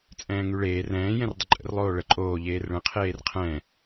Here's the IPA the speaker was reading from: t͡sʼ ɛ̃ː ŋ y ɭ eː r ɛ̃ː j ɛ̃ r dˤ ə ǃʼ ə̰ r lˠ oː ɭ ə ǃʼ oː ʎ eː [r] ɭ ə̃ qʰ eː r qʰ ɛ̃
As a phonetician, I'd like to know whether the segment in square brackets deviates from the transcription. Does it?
no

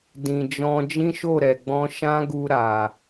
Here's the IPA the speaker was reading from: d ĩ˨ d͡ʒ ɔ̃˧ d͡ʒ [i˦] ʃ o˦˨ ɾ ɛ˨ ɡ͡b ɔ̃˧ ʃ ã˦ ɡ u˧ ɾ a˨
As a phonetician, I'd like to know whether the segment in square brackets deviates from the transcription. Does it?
yes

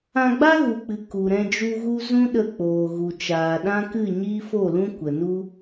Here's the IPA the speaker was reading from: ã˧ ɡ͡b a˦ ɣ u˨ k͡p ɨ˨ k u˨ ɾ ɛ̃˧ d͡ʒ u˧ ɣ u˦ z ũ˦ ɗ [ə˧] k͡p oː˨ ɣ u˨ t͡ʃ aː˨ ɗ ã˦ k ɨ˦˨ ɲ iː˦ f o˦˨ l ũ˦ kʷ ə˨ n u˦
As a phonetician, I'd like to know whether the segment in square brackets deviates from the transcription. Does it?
no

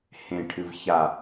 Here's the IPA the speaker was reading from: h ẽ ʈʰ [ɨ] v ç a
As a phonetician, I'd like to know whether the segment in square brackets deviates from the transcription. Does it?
no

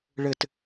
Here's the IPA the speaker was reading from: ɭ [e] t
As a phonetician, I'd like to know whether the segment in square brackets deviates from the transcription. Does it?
yes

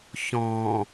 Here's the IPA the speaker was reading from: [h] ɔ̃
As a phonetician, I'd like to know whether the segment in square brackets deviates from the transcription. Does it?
yes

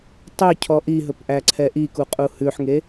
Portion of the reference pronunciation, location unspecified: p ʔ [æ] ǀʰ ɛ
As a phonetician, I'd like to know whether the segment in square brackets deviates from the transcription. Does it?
no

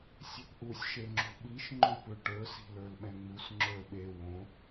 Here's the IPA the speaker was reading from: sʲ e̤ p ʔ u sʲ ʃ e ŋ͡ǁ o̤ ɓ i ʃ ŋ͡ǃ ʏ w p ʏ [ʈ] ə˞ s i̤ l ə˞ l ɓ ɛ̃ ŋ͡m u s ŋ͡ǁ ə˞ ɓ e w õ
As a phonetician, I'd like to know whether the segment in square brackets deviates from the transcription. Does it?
no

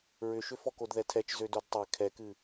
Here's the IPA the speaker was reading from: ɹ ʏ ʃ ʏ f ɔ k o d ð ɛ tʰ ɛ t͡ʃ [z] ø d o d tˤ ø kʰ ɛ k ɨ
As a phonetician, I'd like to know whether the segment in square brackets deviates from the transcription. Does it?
no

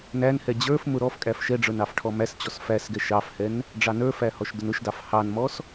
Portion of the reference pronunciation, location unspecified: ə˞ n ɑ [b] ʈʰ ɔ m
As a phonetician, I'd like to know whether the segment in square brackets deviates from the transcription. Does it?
yes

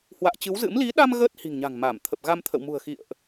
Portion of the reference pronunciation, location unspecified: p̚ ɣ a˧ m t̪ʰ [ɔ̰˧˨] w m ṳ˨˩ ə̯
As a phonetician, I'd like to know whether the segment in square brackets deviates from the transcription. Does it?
yes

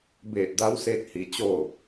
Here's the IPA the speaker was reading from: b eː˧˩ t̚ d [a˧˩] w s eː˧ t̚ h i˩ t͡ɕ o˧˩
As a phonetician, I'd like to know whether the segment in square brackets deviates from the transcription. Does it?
yes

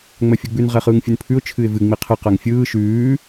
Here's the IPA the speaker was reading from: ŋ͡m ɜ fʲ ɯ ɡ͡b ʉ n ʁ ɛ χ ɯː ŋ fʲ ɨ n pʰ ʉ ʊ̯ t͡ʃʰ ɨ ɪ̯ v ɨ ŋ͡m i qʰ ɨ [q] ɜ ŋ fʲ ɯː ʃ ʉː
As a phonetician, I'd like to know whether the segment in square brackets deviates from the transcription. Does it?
no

